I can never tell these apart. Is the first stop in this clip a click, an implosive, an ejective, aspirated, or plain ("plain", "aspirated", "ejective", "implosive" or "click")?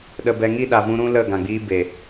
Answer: implosive